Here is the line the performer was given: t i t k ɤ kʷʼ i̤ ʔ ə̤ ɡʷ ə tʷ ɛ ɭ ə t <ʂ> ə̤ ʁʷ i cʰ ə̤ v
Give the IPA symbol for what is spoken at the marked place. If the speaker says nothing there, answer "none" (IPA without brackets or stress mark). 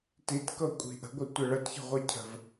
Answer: ç